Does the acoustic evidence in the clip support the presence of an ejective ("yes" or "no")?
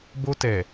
no